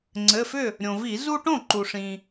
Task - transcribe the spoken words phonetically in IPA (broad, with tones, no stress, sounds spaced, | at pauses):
ŋ͡ǀ ɘ˩˧˩ f ʏ˥˩ | ɾʲ õ˩ v i˧˩˧ z u˦ ʈ õ˥˩ ǃ u˩ ʂ ĩ˩